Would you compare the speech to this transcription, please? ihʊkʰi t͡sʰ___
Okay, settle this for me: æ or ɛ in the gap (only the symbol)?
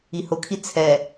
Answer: ɛ